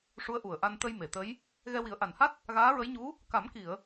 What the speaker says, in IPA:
ʂu˧˥ə̯ʔu˨˩ə̯ʔa˧n t̪ə˧jme˨˩˨ t̪ə˧˥j | ɣɛ˧wi˨˩˦ə̯ʔa˨˩nha˦˥t̚ | ɣaː˧˥ɹə˧˥jɲu˧˥ | ka˨˩˦mki˨˩˨ə̯

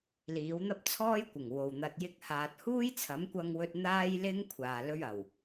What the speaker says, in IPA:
liː˨˥w n̪ɐ˥p̚t͡sʰɔː˥jkʷɪ˨˩ŋ wo˨wn̪ɐ˧t̚ jɪ˥k̚haː˧t̚ huː˥jt͡sʰɐ˨˥mkʷɐ˧ŋwɵ˧t̚ n̪aː˥jlɪ˥ŋ kʷʰaː˨ lɵ˥ɥɐ˨˩w

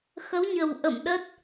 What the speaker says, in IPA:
xə˨˦wɲə˨˩wʔə̰˧˨m ɗə˦˥t̚

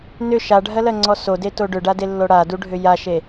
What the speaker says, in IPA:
nʏ ʃaɖʱɜlɜŋ͡ǀɔ sodeto ɖʏɖadelːo ɽaduɖʱʏ jaʃe

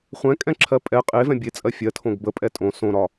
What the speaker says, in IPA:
χʷɛ̃kʼɛ̃ǁʰɜ pʼɛ qʼevɛ̃ bʲet͡sʼɜ fʲɜtʰõɡ bəpʼɛ tʼõ sõɾɒ

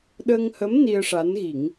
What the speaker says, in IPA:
ɗəː˧ŋhə˧˥m ni˧ə̯ʂa˧˥nɣi˨˩˦ŋ

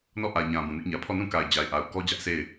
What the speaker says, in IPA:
nɔ˦˨ʔä˨ɲã˨ bũ˨nɪ˦ʔɲä˨ pʰɔ˦˨nũ˦˨ka˨ɪ̯ d͡ʑa˨ɪ̯ʔa˨ʊ̯kɔ˦ d͡ʑä˦ʔsʰe˦˨ɪ̯

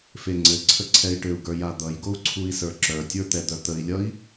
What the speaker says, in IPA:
feŋ͡ǀɘǀʰə ǀʰɛi̯ʈɘu̯ɡə˞ jad̪ʌjɡou̯ ǀʰui̯sə˞ǁœtʲə˞ t̪ɛd̪œt̪əi̯lʲʌi̯

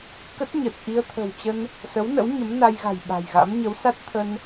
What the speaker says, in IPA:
kə˦˥t̚ɲə˨˩t̚ ʔi˧ə̯ t̪ʰə̤˨˩wt͡ɕə˧n | sə˨˦wnə̰˧˥w ɲə˨˦mna˧jɣa̤˨˩j ɓa̤˨˩jɣa̰˧˥m ɲə˨˦wsa˦˥t̚t̪ʰə˧n

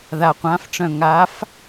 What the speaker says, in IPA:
ða˨qʷã˨˥fʈ͡ʂœ̃˨ ŋa˨˥f

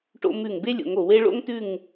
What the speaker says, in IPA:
ʈo̰˧mʉ˧˩ŋ be˥lʲo̰˩˧ŋo˧˩we˥ ɭo̰˥ŋtʉ˥˧ŋ

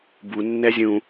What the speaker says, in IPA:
bu nːɛzʲũ

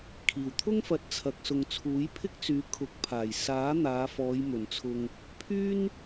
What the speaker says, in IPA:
kʰiː˨˩wt̪ʰʊ˥ŋfɐ˨˥t̚ t͡sʰɐ˨k̚sʊ˨ŋ t͡sʰuː˨˥jpʰɪ˥k̚t͡syː˨˧ kʰʊ˨˥k̚pʰaː˨˩j saː˨˥ n̪aː˨˧fɔː˨˧j mɵ˨˩nt͡sʰʊ˨ŋ | pʰyː˥n

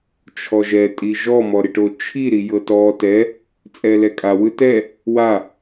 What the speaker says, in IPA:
t͡ʃʰɔʒɛ tʼiʒɔ mɔɾiʈot͡ʃʰi ɾijɤtɔ tɛ | t͡sʼɛlɛkʼa wɯtɛ | wa

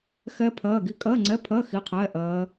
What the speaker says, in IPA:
xɛ˦˥ pʰɜː˧˥˧ɡi˦˥ kʼɜː˧˥˧ŋ͡ǀɛ˧˥˧ pʰɜ˧˥˧ xi˧˥˧qʰɛː˧˥˧ ʔɜː˦˥

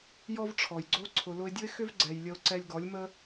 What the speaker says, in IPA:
jɔ˦vʈ͡ʂʰɔ˨jɡ͡ǀo˦ ǀʰʊ˨lʊ˧ɪ̯dʲʊ˦ɪ̯xʏ˦v ɡ͡ǀɛ˨jlʲə˧ʊ̯ ǀɛ˧lʲɡɔ˨˦lʲmə˦

